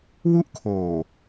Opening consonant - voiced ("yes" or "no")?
yes